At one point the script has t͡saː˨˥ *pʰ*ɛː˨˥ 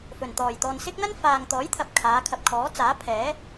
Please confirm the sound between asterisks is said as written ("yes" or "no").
yes